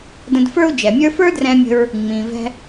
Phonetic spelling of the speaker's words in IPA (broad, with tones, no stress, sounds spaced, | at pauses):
d ə̃˧ d f ə˞˥ u̯ d͡ʒ ɛ˩ mʲ ə˞˥ f ə˞˥ d r ɛ̃˧ mʲ ə̤˧ ɹ | ŋ͡m ĩ˩ v ɛ̤˧